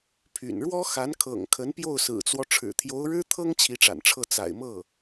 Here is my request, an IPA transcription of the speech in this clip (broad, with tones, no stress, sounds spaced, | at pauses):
pʰ y̰˨˩ n ɻ w ɔ˥ x a˧˥ n kʰ ɤ̰˨˩ ŋ kʰ ə˧˥ n p j o˥˩ ʊ̯ s ɹ̩˨˩ t͡s w ɔ˦ ʈ͡ʂʰ ɻ̩˨˩ t̪ʰ j o˧˥ ʊ̯ ɻ ɻ̩˥ t̪ʰ ɤ˥ ŋ t͡ɕʰ i˧˥ ʈ͡ʂ a̰˨˩ n ʈ͡ʂʰ ɤ˥˩ t͡s a̰˨˩ ɪ̯ m ɤ˥˩